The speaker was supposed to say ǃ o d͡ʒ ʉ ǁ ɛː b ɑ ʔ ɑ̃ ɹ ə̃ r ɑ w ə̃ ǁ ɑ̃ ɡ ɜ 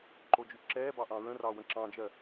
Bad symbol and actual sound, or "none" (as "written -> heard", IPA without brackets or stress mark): ɡ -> d͡ʒ